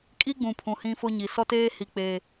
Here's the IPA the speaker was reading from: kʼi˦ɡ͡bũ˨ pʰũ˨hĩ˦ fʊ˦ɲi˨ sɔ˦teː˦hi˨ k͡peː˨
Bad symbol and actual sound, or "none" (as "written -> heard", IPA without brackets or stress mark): none